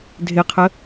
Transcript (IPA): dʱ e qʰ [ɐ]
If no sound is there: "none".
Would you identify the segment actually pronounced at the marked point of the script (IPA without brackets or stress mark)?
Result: ə